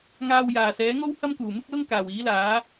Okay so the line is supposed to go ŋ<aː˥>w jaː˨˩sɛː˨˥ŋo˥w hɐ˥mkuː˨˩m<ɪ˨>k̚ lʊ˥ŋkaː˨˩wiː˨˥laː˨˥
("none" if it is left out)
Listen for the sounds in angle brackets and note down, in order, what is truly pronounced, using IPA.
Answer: aː˨, ɪ˥

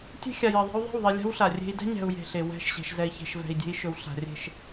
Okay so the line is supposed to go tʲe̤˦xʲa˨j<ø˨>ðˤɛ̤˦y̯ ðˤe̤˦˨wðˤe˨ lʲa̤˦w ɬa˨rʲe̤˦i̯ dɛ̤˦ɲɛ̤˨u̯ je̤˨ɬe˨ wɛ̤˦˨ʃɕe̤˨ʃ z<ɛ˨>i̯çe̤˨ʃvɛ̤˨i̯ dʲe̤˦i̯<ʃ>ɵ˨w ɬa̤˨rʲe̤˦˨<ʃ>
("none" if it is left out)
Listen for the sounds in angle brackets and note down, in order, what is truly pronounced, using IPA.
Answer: ɛ˨, ɛ˨, ʃ, ʃ

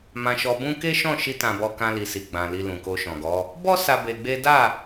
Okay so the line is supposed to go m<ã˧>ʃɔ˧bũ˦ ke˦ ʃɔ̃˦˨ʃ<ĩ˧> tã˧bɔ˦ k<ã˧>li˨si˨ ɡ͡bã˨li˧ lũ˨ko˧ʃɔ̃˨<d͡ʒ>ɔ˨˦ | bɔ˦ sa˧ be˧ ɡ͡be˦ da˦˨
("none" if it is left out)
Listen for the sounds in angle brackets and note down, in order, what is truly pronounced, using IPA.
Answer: ã˧, i˧, ã˧, ɡ

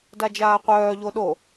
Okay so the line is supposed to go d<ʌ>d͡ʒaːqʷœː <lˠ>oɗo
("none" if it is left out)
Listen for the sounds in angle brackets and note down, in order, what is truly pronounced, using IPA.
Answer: a, ʎ

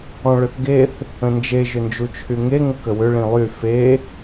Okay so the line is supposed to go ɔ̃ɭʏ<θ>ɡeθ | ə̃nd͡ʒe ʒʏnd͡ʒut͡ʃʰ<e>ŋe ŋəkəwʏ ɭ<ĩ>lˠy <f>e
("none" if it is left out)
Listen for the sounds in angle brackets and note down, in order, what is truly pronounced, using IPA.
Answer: θ, y, ĩ, f

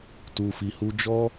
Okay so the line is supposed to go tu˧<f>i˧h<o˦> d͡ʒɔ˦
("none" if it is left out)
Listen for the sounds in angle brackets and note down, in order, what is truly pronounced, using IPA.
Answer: f, u˦

